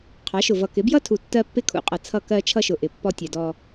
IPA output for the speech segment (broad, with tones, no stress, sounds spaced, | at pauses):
qʰ ɑ˨˦ ʃ ʊ˨ v ʌ˨ k ɪ˨˦ b j ʌ˦ tʰ u˨ tː ɜ˦ pː ɪ˦ kʰ ṵ˨ qʼ ʌ˨ t͡sʰ ʌ˦˨ k ɜ˦ t͡ʃʰ ʌ˦ ʃ ʊ˨ ʔ ɪ˨ pː ɔ˦ tʲ ɛ˨ d ɔ˦